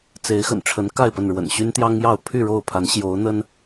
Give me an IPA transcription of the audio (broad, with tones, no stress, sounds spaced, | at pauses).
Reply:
t͡s e˨˦ ɪ̯ x ə̰˨˩ n ʈ͡ʂʰ ə˨˦ n k a˥˨ ɪ̯ p ə˥˨ n ɻ w ə̰˨˩ n ɕ y˦ n t̪ j ɑ˦ ŋ j ɑ˥˨ ʊ̯ pʰ y˥˨ ɻ o˥˨ ʊ̯ pʰ a˨˦ n ɕ j o˨˦ ʊ̯ n̪ ə˦ n